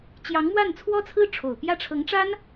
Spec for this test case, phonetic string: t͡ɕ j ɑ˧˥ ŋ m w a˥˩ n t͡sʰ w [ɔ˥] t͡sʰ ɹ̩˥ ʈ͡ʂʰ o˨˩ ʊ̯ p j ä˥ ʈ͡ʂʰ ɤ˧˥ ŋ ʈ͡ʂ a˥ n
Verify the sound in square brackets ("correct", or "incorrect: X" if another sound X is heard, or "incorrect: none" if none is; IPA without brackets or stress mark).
correct